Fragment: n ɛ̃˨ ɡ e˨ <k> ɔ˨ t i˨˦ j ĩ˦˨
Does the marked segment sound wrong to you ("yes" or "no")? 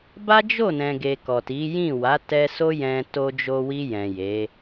no